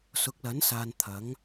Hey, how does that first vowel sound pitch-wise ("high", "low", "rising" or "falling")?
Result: rising